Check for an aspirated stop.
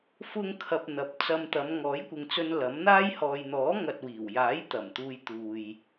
present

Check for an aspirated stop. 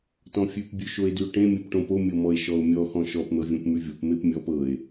absent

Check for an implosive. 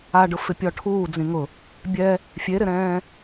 absent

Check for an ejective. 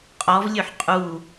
present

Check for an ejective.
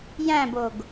absent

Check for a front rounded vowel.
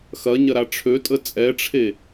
present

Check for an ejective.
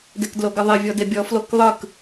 absent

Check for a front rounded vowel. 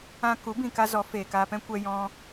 absent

